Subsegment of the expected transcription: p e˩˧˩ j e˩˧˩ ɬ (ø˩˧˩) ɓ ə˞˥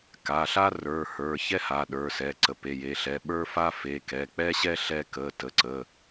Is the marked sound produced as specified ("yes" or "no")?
no